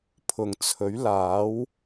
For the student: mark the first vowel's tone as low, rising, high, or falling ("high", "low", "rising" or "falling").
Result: low